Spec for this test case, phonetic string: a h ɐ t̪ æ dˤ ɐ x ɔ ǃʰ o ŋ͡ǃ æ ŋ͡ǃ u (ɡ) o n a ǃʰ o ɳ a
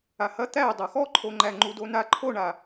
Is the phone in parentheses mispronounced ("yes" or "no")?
yes